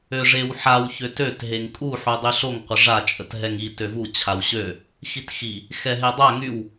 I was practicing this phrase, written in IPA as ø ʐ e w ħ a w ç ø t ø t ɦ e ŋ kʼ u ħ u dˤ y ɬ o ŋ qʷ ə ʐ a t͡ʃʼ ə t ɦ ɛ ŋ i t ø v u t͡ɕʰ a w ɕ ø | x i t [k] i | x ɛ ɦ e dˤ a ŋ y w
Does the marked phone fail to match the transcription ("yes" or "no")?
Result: yes